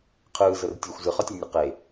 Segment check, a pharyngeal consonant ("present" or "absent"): absent